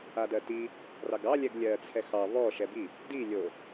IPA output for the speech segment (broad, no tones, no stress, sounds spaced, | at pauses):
a d ɜ t i | r ɑ ɡ ɑ lʲ ɛ ɡ lʲ ɜ t͡sʰ ɛ x ɑ β ɔ ʃ ɛ b i | d i lʲ o